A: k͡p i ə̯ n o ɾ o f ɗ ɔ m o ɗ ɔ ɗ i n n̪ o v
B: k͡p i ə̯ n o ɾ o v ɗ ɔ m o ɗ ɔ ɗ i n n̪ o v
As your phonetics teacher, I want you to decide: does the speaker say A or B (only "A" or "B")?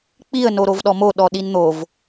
B